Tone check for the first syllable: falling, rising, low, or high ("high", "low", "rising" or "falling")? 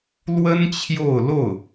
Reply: high